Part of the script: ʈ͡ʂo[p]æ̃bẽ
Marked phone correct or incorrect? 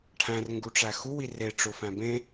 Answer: incorrect